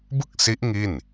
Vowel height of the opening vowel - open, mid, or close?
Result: close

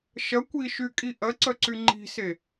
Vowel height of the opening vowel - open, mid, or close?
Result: open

